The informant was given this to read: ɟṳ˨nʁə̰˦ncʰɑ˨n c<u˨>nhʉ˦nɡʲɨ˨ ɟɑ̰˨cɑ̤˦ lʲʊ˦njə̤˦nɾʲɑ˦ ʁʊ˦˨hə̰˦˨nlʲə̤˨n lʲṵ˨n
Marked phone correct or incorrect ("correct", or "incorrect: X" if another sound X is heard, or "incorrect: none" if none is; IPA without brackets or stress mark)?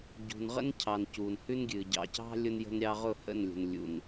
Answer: correct